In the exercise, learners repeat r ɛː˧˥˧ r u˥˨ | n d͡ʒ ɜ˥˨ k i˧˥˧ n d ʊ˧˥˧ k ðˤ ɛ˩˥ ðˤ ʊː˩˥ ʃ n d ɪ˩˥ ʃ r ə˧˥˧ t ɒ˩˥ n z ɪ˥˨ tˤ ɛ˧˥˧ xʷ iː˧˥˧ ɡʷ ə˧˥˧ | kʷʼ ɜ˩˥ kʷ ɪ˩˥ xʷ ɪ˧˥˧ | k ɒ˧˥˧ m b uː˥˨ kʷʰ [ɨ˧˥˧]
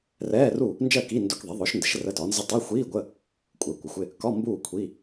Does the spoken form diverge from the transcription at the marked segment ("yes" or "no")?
yes